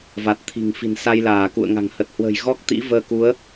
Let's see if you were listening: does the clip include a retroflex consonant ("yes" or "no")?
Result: no